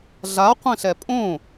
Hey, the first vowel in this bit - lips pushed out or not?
no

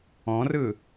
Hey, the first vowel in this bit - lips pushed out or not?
yes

